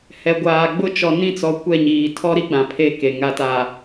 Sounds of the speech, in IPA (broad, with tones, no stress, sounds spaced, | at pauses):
h ɛ˨ ɡʷ aː˨ ɡ͡b ʊ˦ t͡ʃ ɔ˨ n ĩ˦˨ t͡s ɔ˨ kʷ ɛ˦˨ ɲ iː˨ tʰ ɔ˦ ɾ i˦ ɡ͡b ã˨ pʰ e˦ k e˨ ŋ a˨ t a˨